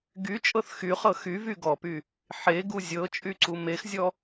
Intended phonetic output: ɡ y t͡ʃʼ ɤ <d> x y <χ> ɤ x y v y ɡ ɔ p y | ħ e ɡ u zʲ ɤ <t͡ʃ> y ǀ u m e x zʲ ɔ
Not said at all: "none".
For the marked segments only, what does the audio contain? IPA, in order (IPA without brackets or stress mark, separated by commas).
θ, χ, t͡ʃʼ